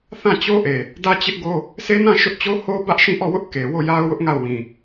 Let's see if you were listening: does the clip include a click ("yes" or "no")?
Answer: no